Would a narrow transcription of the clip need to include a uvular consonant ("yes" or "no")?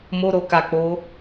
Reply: no